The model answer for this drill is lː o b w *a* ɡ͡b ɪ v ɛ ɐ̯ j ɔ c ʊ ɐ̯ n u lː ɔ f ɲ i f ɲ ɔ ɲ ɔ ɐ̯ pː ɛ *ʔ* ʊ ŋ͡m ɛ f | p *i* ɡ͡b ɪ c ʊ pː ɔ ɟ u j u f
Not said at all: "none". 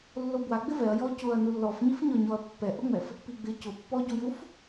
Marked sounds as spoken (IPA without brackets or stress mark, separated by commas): a, ʔ, i